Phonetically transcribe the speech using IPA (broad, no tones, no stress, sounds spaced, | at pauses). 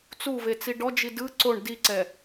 t͡s u v e t͡s i ɖ ɔ d͡ʒ i d ɯ ǀ o ɳ d i ǀ ɛ